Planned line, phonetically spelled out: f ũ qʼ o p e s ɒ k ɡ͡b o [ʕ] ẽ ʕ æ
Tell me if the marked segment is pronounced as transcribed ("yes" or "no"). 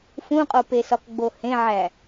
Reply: no